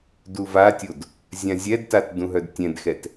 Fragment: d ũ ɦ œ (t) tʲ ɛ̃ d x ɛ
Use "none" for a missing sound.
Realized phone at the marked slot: d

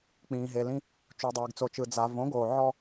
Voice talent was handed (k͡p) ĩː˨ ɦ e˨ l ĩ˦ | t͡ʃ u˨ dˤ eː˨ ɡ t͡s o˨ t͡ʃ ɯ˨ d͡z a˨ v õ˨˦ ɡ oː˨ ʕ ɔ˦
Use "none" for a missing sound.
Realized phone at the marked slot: k͡p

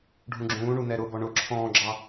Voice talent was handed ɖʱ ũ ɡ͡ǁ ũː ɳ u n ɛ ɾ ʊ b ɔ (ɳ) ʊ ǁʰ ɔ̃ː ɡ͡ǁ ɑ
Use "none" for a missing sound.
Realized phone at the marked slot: ɳ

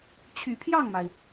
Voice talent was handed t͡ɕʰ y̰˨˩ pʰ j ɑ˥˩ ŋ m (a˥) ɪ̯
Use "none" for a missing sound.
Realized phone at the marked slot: a˩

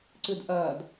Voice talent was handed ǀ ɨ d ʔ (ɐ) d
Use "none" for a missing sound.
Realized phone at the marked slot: ɐ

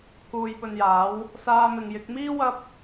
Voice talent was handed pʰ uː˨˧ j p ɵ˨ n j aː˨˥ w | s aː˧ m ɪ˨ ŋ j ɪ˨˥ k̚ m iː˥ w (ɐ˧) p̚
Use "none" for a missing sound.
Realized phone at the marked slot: ɐ˧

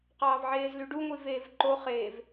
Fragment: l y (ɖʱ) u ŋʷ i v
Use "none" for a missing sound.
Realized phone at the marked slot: ɖ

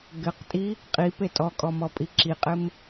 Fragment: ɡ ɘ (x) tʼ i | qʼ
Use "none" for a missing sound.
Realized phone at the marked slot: q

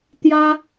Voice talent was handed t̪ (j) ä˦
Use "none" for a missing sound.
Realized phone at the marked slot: j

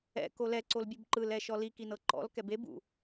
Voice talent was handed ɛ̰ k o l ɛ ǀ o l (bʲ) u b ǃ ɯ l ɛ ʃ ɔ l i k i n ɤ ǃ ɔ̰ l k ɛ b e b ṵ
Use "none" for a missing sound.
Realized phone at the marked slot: bʲ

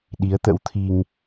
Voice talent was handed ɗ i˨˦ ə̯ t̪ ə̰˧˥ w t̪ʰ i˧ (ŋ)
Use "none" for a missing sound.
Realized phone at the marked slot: ŋ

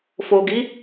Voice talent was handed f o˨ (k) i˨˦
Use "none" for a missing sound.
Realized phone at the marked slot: ɡ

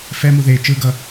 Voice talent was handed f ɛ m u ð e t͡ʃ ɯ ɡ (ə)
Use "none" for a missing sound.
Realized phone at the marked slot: ʌ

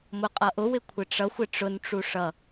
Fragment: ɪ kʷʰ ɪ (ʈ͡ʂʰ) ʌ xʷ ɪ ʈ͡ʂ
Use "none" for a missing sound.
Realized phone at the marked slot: ʈ͡ʂ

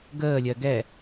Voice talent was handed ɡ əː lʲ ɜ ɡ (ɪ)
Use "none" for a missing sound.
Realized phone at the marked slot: ɛ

